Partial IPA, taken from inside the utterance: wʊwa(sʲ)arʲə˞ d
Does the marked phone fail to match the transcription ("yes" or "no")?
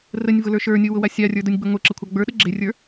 no